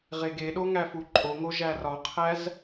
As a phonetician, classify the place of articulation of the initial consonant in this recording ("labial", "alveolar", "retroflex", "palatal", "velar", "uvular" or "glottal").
uvular